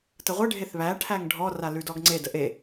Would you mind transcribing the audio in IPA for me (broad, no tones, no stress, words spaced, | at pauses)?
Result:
təʁʷə ɖʱeθβæ ʈʰæŋɖʱɔ ralʉdɔɡŋ͡ǀe dəʔe